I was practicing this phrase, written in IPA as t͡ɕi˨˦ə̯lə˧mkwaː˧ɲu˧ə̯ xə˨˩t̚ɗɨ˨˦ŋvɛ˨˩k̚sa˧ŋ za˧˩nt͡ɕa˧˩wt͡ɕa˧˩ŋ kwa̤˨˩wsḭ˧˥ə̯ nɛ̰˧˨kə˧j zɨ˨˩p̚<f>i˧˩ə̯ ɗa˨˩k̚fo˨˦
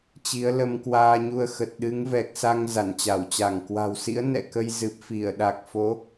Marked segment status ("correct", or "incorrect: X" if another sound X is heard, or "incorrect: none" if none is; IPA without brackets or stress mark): correct